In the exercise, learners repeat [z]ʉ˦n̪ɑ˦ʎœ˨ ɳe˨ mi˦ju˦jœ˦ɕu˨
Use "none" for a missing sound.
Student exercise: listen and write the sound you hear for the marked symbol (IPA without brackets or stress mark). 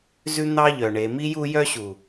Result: z